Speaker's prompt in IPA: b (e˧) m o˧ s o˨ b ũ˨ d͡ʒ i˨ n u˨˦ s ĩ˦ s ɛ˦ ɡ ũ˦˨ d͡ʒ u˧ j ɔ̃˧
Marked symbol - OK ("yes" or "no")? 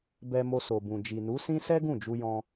no